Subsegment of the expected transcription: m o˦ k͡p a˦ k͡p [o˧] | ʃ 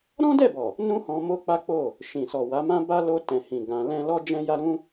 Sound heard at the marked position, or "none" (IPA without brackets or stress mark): o˦˨